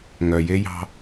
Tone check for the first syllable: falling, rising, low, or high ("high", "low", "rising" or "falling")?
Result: low